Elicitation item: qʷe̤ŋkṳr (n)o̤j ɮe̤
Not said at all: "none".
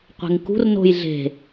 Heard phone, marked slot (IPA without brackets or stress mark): n